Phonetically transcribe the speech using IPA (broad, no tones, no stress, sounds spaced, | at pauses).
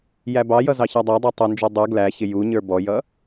j æ b ɑ j ʌ z ɑ ç æ dˤ æ dˤ æ tˤ ʌ n d͡ʒ ə˞ dˤ ə˞ ɡ l æ ç ɪ j u ɲ ə˞ b ɔ j ʌ